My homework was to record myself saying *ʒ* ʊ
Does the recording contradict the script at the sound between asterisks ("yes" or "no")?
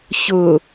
yes